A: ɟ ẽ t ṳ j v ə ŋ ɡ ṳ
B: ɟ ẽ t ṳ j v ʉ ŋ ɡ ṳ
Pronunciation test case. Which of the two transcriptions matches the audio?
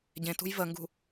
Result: A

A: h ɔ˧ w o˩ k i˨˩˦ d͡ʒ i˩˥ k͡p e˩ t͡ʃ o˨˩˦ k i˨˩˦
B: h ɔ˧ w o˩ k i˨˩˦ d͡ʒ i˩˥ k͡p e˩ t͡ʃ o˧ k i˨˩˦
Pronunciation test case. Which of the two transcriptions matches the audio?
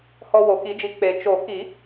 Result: A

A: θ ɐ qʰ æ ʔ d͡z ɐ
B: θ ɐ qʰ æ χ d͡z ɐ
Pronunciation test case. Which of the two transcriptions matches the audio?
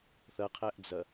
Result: A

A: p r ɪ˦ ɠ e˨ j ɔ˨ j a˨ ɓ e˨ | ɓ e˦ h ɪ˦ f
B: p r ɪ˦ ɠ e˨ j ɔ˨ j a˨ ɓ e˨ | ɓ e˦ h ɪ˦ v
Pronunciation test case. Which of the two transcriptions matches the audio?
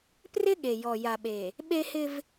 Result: B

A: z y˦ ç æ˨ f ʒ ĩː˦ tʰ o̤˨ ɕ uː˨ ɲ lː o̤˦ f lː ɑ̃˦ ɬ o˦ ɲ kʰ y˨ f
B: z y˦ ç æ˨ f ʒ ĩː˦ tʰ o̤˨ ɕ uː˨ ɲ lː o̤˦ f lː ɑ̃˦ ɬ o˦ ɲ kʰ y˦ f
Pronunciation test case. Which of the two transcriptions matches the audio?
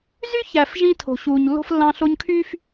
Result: B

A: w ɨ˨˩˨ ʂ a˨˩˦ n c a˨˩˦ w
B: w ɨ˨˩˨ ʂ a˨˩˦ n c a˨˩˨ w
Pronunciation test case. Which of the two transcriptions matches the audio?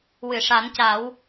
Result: A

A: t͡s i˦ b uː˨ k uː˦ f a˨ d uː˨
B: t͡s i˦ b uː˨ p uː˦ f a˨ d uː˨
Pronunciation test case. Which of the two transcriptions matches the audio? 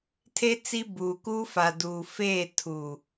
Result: A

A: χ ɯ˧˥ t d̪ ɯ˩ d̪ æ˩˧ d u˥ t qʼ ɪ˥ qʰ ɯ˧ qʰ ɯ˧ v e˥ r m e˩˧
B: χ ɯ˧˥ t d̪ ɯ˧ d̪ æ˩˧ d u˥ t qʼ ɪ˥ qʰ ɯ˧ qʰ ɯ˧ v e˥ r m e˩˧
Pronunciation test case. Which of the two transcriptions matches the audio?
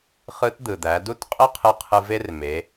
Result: A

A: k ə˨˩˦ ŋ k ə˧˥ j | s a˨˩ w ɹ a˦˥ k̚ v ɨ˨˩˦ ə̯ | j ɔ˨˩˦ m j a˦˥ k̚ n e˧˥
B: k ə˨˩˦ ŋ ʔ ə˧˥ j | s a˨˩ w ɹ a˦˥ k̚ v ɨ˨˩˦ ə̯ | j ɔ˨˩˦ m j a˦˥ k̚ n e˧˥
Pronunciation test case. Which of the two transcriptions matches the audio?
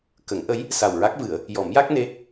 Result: B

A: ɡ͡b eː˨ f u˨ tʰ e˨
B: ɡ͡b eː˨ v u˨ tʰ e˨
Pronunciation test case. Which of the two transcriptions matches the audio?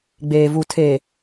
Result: B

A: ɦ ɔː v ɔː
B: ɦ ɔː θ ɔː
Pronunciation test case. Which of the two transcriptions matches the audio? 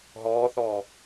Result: B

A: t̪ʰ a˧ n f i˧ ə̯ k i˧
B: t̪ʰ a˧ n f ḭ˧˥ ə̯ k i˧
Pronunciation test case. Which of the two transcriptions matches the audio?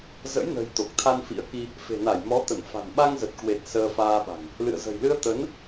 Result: B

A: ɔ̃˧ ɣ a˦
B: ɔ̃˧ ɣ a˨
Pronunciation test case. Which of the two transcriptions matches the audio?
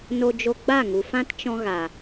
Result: B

